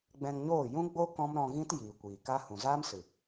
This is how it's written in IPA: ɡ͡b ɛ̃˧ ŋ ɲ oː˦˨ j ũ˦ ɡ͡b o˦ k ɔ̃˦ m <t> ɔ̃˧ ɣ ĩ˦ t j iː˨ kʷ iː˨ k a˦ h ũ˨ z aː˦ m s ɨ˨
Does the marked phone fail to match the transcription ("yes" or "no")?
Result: yes